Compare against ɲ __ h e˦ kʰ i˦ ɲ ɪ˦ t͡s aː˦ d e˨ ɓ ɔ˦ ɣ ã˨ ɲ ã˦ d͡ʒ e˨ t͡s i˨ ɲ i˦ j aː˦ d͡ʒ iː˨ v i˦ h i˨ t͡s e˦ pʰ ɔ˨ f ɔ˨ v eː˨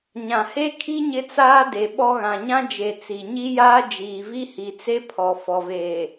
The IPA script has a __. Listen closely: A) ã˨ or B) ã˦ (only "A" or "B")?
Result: A